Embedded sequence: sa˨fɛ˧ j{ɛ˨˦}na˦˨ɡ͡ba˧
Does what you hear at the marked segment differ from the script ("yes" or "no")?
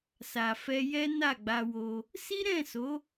yes